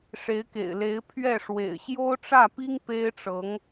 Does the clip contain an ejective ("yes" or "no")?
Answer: no